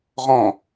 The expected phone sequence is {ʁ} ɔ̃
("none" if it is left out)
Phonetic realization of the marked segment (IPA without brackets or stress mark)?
ʁ